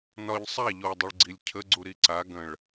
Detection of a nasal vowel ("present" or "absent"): present